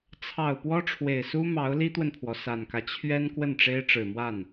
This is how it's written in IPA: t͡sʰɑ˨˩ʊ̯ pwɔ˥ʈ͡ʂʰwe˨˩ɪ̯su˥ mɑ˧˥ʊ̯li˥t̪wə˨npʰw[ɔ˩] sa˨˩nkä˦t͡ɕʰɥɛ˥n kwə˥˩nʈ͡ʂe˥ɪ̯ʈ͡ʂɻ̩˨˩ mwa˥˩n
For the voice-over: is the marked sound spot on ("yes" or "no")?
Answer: yes